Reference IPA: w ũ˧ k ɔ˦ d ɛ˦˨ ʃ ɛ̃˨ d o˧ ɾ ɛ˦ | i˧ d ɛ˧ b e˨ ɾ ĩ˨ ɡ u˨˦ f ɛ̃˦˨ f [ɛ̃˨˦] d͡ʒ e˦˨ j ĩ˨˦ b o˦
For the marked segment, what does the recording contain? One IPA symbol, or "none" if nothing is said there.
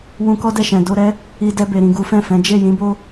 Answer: ɛ̃˨˦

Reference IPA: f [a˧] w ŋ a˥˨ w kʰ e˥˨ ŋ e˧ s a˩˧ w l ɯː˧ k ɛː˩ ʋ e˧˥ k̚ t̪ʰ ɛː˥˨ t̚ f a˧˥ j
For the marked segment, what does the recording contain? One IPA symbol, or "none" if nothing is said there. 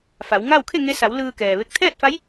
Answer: a˩˧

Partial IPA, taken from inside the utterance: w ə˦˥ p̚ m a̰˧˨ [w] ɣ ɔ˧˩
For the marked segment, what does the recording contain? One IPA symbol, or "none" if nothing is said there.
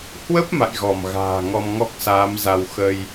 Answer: j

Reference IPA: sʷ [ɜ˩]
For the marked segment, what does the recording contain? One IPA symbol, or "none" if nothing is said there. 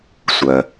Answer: ɜ˩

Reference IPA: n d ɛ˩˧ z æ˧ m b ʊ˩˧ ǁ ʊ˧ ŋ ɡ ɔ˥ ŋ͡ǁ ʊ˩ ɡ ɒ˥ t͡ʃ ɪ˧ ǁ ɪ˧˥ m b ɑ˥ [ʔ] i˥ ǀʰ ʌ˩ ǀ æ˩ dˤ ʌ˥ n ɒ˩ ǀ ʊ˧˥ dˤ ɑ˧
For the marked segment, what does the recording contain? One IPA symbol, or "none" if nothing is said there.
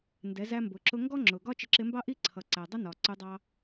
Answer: ʔ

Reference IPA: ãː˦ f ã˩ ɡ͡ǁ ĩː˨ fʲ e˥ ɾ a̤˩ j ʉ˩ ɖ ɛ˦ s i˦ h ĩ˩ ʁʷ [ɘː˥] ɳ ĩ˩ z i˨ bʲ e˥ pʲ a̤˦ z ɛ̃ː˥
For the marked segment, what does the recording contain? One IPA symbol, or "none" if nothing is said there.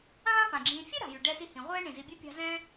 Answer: ɛː˥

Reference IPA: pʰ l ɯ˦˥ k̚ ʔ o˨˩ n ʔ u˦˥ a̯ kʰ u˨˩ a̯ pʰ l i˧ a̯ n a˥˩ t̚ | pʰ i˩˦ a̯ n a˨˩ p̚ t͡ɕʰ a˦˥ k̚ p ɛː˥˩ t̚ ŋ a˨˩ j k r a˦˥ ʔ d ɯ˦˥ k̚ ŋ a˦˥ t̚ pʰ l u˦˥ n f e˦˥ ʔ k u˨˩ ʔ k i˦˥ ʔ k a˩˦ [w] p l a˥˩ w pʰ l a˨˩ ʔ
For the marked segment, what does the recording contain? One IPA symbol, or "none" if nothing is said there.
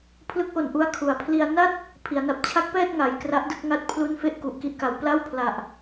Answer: w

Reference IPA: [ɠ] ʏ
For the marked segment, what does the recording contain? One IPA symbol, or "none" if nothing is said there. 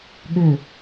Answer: ɠ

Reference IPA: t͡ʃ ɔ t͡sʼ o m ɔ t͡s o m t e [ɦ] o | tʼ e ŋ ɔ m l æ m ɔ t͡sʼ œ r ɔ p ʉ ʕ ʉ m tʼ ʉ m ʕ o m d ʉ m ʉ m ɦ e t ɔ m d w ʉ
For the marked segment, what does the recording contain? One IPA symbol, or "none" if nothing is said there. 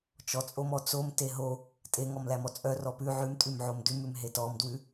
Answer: ɦ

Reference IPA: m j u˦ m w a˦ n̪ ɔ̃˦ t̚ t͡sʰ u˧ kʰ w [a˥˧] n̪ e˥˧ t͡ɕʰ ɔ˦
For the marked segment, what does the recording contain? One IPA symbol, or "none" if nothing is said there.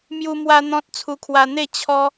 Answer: a˧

